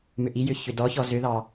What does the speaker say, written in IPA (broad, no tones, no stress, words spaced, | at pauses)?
mʏʔijʏ çʏdɔçɔ zʏðɑ